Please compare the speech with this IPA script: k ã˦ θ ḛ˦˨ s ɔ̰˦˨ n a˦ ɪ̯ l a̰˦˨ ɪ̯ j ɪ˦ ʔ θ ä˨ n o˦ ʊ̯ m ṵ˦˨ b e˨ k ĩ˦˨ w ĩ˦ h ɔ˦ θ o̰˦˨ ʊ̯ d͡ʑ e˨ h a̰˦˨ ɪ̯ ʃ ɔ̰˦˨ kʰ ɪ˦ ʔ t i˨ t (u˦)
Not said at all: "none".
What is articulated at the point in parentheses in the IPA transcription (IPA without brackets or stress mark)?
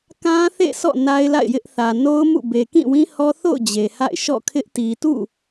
ṵ˦˨